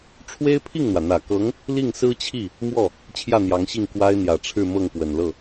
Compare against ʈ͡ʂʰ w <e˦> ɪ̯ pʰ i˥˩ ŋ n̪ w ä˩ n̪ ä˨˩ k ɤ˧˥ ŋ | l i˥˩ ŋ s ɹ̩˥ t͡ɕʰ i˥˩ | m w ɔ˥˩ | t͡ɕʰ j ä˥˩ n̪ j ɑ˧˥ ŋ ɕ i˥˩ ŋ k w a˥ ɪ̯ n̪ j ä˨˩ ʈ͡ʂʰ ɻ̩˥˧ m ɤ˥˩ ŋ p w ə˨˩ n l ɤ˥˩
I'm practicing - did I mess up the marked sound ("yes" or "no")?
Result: yes